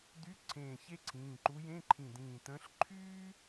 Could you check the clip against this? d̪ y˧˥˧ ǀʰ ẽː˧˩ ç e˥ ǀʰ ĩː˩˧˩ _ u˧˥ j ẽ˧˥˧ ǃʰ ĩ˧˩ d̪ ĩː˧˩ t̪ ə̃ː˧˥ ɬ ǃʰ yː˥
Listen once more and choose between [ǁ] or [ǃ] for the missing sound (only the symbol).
ǃ